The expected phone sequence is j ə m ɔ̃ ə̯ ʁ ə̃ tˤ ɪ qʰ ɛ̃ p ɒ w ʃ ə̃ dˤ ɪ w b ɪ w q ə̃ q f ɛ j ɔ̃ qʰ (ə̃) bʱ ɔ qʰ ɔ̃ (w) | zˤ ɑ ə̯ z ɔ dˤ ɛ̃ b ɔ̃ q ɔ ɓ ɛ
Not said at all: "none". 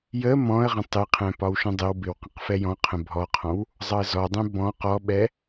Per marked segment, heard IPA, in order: ə̃, w

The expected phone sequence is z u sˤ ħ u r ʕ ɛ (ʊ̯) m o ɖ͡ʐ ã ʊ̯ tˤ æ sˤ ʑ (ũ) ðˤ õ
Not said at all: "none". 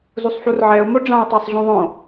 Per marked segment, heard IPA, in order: ʊ̯, ũ

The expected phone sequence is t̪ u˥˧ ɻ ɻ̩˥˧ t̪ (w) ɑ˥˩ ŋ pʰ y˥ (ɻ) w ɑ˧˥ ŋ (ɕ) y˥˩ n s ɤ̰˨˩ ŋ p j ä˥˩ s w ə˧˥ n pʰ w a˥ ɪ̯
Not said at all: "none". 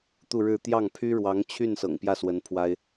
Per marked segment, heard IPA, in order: j, ɻ, t͡ɕʰ

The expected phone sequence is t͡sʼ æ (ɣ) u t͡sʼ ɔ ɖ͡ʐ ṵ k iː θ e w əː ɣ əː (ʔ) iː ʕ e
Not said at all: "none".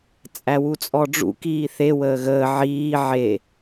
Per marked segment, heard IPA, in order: w, ʕ

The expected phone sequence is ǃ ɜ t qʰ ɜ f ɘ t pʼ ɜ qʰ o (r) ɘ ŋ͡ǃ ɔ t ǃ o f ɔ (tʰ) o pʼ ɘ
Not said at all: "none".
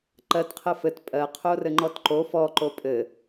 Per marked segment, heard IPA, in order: r, ǃ

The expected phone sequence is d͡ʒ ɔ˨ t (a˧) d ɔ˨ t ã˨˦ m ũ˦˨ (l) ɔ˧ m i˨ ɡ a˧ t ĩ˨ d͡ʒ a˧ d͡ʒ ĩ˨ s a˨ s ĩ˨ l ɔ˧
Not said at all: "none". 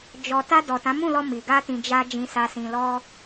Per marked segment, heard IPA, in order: a˧, l

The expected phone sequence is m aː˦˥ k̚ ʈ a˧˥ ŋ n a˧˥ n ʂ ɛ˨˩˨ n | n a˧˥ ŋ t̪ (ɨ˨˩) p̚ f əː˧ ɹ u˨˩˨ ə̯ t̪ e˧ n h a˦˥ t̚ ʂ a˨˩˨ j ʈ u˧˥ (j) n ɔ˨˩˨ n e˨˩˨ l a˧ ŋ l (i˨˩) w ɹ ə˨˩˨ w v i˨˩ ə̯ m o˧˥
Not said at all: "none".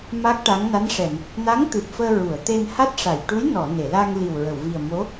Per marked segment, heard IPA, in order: ɨ˨˩, j, i˨˩

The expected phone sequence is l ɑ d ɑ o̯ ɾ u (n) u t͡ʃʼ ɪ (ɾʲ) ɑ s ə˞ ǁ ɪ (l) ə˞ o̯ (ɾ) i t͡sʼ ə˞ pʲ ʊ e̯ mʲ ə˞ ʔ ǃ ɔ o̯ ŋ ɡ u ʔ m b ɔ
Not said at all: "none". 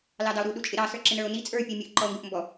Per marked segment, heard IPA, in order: ɗ, ɾ, n, n

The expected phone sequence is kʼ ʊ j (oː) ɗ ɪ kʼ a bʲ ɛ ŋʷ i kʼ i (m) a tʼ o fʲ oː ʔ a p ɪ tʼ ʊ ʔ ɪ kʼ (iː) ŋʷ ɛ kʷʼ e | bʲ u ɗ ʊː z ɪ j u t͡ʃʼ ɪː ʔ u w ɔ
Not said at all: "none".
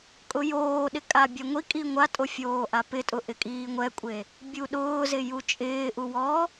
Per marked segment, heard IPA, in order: oː, ŋʷ, iː

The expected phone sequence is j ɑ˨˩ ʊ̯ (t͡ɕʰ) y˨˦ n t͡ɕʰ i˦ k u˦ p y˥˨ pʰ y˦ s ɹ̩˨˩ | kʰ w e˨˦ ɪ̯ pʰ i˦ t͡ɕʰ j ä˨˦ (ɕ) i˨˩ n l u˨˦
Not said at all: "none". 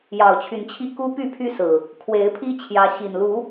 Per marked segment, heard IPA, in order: t͡ɕʰ, ɕ

